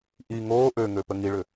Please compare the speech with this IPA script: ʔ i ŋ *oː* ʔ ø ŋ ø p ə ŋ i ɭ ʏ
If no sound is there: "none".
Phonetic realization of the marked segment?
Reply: oː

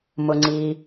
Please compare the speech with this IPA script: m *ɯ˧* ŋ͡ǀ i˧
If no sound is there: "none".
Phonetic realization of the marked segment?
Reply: ʊ˧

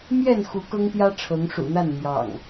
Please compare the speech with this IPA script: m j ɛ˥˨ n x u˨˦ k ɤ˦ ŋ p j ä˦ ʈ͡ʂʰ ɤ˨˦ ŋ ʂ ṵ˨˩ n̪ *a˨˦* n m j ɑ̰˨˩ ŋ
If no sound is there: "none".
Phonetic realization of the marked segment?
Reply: a˥˨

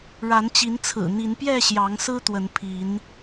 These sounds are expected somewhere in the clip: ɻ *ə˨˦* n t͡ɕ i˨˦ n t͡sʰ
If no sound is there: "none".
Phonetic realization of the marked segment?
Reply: a˨˦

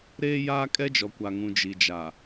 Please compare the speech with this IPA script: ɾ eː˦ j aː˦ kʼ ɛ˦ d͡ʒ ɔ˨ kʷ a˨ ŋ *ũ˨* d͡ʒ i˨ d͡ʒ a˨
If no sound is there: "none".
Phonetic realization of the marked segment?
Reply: ũ˨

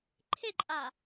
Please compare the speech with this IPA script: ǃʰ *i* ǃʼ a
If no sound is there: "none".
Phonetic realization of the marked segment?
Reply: e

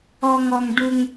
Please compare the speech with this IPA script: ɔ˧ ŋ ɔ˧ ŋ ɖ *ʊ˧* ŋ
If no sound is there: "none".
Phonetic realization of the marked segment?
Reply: u˧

